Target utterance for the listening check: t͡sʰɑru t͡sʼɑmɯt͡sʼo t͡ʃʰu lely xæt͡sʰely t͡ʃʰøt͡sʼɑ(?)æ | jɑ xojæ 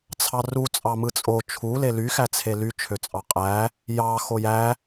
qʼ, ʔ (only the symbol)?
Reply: qʼ